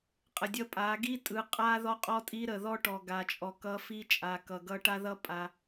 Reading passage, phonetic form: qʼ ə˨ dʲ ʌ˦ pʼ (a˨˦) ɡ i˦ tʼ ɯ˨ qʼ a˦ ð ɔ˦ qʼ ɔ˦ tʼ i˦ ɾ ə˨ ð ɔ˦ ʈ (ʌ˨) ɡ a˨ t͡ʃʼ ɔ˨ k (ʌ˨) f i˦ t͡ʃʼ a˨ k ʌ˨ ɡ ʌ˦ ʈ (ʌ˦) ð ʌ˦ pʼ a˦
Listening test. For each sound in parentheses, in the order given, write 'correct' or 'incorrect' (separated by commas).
correct, incorrect, incorrect, incorrect